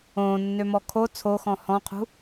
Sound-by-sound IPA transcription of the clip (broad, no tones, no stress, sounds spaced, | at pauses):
õː nː ø m ɔ kʰ o t͡sʰ o x ɔ̃ h ɔ̃ qʰ ṳ